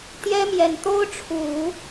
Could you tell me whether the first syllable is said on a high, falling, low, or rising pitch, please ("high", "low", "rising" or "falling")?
high